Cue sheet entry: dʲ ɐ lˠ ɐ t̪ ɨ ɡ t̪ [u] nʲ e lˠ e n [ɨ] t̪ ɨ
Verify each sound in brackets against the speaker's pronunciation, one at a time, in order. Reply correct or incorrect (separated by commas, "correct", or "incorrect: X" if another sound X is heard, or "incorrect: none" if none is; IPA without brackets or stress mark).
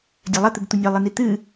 correct, incorrect: i